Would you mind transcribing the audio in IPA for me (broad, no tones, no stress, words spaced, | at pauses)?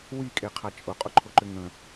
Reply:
wikʼeqʰa t͡ʃʼʊqʼʊǃʰʊǃʏ ŋə̃